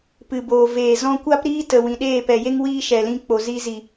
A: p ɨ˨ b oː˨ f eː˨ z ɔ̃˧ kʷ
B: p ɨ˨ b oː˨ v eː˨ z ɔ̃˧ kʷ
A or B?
B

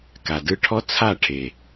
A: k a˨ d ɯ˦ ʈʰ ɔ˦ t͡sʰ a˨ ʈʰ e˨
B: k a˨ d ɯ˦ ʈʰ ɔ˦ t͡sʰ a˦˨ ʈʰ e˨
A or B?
B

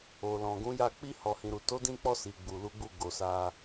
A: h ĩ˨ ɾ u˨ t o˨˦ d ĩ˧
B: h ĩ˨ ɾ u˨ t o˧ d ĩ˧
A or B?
A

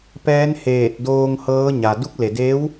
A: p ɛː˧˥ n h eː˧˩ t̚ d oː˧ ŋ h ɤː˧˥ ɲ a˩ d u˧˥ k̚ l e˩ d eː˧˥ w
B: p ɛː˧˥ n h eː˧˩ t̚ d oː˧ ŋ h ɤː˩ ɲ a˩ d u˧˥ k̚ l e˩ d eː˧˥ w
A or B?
A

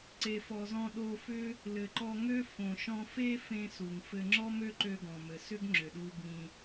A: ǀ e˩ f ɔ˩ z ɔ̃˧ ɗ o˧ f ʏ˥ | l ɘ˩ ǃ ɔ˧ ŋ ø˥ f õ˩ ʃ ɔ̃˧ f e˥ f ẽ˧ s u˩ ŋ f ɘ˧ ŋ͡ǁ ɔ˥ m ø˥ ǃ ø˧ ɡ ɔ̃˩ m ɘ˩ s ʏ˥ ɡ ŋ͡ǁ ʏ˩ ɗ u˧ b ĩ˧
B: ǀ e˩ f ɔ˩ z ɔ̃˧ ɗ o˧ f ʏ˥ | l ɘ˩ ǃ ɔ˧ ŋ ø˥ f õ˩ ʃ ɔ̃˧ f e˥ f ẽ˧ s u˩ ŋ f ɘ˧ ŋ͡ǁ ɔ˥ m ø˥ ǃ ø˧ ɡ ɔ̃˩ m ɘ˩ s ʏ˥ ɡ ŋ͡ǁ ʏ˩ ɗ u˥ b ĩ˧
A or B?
A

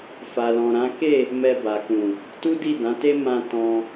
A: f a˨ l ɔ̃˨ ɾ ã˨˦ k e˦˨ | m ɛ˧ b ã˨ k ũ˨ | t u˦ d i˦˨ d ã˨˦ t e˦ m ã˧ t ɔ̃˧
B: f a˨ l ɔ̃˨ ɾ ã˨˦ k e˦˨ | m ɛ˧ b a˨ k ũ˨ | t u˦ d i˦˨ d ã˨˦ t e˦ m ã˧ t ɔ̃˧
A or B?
B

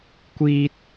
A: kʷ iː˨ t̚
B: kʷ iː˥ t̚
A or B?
B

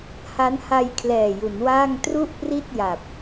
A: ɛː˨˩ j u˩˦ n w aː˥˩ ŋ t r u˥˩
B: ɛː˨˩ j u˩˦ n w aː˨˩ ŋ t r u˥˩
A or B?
A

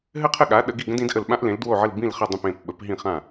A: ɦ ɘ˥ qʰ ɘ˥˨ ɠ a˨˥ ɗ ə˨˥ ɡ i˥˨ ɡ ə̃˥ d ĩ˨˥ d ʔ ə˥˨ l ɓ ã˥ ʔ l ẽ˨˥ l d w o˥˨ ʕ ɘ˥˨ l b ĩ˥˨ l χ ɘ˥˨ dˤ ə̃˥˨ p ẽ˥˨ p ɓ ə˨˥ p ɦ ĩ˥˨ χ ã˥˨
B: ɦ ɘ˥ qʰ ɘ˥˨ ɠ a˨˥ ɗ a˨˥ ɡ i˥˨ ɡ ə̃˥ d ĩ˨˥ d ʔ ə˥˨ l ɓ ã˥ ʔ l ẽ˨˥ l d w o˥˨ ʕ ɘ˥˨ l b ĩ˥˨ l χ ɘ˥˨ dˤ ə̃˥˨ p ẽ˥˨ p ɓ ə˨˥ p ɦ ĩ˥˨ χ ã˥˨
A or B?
A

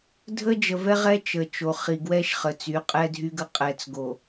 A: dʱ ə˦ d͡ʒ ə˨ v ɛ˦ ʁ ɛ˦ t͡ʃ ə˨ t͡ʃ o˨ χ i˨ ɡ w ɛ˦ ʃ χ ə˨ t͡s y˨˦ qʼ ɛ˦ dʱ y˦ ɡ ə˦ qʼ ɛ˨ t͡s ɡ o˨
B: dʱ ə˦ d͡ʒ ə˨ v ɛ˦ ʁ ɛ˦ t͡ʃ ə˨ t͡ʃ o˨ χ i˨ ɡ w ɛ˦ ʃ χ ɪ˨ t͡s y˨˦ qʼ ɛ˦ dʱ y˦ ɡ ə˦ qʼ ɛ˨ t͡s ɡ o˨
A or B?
A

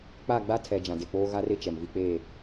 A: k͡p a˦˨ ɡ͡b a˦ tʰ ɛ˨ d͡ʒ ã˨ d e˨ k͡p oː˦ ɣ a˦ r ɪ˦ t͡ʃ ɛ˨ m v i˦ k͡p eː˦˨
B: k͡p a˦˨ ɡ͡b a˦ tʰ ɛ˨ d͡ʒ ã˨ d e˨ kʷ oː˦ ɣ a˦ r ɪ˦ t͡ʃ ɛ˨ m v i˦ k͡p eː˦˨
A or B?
A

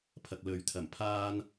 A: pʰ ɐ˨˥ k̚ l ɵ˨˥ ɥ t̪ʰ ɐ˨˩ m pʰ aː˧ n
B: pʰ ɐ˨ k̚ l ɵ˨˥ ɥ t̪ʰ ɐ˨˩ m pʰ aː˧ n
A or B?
B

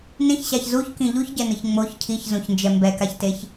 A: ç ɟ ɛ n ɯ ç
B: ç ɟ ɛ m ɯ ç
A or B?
A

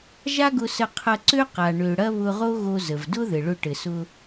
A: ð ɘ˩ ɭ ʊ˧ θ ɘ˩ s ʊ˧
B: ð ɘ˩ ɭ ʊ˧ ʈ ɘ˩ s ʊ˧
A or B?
B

